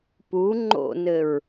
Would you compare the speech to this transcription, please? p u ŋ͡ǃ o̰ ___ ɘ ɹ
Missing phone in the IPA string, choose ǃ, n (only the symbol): n